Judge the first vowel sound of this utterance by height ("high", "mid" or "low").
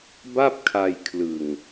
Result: low